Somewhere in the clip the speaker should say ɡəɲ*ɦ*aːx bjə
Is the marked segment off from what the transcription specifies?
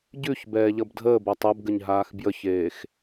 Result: no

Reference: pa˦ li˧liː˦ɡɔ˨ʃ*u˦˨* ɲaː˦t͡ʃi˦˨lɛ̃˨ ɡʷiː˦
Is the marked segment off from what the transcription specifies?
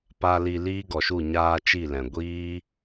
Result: no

